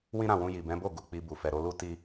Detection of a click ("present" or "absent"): absent